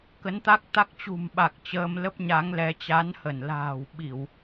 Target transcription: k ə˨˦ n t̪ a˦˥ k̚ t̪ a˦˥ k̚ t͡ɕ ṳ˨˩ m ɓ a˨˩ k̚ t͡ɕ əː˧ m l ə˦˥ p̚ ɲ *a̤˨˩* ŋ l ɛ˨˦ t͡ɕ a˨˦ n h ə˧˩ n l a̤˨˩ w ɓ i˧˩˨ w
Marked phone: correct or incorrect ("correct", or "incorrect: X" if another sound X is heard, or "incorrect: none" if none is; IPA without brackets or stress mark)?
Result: incorrect: a˨˦